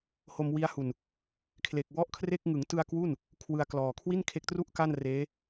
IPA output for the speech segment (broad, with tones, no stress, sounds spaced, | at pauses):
h o˧ m w i˦˥ a̯ h u˨˩ n | kʰ l e˨˩ k̚ w ɔ˥˩ ʔ kʰ r e˥˩ k̚ ŋ ɯ˩˦ ŋ t ɯ˧ a̯ k w u˥˩ n | kʰ w ɯ˧ a̯ k l ɔː˨˩ kʰ w i˥˩ n kʰ e˦˥ k̚ t r u˥˩ ʔ k a˥˩ n r eː˦˥